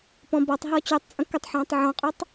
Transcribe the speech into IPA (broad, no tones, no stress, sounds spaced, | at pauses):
p ɔ̃ b ɔ tˤ ɦ ɔ t͡ɕ y tˤ t͡sʼ ə̃ k ə tˤ ħ ɔ̃ː tˤ ʕ ɔ̃ qʼ o tˤ